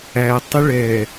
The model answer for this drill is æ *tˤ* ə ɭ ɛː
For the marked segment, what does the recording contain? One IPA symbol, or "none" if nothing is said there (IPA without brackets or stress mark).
tˤ